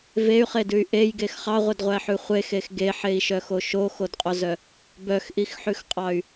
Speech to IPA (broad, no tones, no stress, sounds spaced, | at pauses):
v e y̯ χ e d ʉ y̯ ʔ e j ɡ e x χ ɑ ʁʷ e d ʁʷ æ ħ ʉ χʷ e x e x ɡ e ħ e i̯ ʃ œ x o ʃ o x o d qʼ o z œ | b œ x ʔ i x ħ ʉ x qʼ ɑ y̯